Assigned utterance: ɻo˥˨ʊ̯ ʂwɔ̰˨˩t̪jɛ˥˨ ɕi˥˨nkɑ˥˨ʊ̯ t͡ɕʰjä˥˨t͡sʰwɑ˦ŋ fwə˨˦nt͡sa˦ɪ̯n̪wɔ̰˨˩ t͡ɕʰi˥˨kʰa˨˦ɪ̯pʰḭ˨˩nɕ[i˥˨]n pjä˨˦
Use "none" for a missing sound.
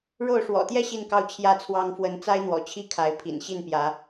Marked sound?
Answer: i˥˨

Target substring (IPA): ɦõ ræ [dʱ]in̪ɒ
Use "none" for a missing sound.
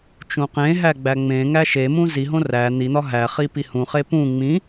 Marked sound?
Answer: n̪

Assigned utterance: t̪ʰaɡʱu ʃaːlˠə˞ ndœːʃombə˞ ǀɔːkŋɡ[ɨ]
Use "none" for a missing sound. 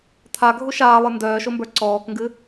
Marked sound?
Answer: ɨ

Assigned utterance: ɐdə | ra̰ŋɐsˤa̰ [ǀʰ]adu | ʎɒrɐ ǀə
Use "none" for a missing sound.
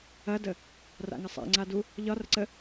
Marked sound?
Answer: ŋ͡ǀ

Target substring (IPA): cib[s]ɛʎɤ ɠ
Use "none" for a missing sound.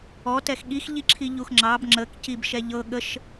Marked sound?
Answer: ʃ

